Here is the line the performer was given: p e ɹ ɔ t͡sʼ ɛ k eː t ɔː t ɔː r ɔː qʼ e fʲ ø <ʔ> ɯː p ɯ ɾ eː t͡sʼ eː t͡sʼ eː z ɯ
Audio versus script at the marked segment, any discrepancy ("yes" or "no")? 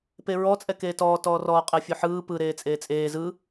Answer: yes